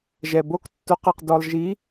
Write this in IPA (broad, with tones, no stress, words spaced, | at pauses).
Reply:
ʒɛ˩bo˥k tːo˧˥qɐ˧qdɔ˧lˠ ʒi˧˥